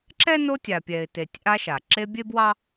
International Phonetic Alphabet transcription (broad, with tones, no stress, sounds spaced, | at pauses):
ǁ ɛ˥ n o˦ tʲ a˨ pʲ ɛ˨ ɪ̯ t e˨ tʲ ʔ a˦ ʃ a˩ ǁ e˦ bʲ e˥ b w ɑ˥